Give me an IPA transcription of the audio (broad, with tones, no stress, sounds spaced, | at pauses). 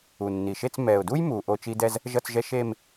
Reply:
u˨˩ nː i˨˩ ʃ e˥˧ t͡s m ɛ˨˩ ʊ̯ d u˥ j m u˨˩ ʔ o˥˧ t͡ʃ i˥ d ɛ˥ z | ʒ ʌ˥˧ t͡s ʒ ɛ˥ ʃ e˥˧ m